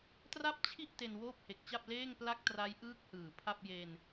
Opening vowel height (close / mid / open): open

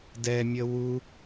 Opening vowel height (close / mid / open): mid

